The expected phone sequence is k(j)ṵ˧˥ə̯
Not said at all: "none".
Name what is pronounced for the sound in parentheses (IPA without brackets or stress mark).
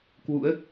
w